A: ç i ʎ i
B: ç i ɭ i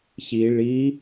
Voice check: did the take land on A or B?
B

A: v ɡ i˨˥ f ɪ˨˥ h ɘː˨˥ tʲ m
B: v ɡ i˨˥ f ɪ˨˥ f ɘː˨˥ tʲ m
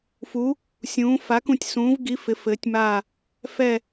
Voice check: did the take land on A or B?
B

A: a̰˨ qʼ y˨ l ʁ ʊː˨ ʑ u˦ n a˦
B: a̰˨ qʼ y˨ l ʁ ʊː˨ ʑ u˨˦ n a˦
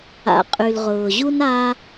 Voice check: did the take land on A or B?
A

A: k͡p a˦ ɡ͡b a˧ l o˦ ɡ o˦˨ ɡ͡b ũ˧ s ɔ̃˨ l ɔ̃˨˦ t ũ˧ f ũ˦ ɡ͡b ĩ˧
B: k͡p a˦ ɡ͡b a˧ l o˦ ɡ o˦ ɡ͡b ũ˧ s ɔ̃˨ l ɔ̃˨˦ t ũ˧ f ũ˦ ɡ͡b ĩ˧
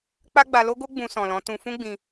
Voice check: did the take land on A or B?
B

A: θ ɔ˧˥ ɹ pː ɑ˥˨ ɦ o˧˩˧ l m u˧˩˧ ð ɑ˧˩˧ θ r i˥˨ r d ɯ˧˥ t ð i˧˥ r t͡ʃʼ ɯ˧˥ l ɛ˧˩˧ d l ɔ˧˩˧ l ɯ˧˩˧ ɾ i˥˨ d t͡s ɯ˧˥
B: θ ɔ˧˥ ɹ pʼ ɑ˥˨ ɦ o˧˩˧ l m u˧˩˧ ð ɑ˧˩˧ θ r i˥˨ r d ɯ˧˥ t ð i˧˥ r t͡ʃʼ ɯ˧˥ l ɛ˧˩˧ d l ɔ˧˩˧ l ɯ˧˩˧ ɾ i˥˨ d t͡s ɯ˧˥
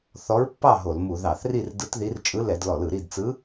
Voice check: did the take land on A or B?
A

